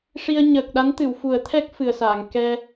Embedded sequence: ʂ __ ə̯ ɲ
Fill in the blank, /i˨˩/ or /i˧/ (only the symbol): i˧